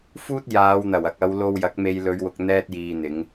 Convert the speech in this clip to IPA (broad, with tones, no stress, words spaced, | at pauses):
fuː˥t̚ jaː˨˧wn̪ɐ˨˩wɐ˨k̚ ɐ˨˧w lo˧wjɐ˨˥k̚me˧j lɵ˨˧ɥwʊ˨k̚ n̪ɛː˧t̚jiː˨n̪ɪ˨˧ŋ